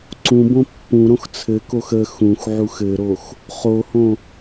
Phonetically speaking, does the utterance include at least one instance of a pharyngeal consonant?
yes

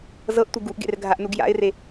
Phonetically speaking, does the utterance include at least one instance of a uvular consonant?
no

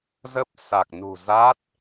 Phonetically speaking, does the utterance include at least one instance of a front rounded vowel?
no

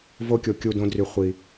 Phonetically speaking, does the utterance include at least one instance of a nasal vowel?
yes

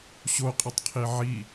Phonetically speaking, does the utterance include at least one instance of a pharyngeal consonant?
yes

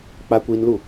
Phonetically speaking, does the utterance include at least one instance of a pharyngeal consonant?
no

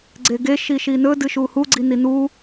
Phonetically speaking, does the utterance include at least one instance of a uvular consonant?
no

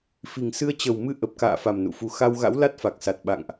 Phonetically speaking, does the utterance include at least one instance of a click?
no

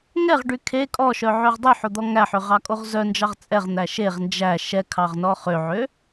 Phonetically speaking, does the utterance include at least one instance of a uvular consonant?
yes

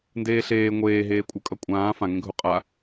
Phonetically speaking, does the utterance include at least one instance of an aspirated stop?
no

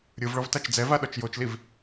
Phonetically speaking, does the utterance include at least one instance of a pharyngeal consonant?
no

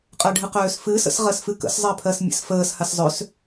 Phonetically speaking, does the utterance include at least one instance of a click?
no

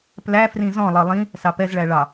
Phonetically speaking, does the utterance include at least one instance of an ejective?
no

